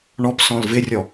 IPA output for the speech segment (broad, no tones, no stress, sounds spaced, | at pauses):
ɳ ɔ p s ɔ̃ l v ɪ rʲ ɔ